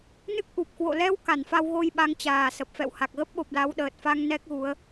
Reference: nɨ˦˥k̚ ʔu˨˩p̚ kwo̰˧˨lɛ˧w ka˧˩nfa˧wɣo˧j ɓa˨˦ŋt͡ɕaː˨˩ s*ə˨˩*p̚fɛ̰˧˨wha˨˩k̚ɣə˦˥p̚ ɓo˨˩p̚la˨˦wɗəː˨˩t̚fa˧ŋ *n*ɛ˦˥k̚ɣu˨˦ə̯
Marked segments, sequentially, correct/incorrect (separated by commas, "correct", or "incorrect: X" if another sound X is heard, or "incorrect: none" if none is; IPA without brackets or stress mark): correct, correct